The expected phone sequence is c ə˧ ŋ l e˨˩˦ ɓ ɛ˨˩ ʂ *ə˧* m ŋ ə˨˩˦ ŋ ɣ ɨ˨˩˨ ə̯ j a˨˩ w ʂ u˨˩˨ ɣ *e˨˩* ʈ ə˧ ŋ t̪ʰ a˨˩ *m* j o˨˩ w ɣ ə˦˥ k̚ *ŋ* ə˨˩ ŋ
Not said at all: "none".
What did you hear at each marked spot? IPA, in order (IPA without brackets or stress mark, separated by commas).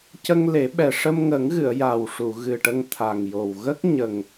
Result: ə˧, ɨ˨˩, ŋ, ɲ